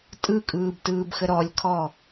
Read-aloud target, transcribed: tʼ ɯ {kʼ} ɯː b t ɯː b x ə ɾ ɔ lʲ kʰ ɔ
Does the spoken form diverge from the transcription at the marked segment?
no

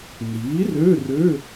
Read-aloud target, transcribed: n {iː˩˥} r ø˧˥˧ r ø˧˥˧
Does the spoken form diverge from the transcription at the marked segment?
no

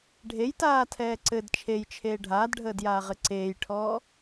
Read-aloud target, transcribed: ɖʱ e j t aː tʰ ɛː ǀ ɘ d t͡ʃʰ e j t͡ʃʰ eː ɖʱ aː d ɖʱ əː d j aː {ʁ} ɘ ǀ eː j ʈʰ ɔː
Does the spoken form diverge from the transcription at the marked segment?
no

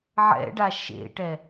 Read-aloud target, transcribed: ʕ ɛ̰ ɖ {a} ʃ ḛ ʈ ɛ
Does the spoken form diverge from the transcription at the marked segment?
no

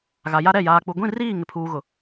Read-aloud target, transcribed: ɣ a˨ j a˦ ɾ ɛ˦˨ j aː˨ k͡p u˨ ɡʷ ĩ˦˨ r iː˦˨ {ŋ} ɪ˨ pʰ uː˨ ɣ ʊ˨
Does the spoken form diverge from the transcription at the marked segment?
no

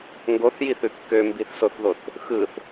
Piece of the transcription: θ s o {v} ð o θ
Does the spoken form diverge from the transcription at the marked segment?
yes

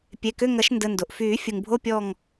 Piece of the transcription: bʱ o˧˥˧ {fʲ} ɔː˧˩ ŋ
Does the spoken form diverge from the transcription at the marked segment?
yes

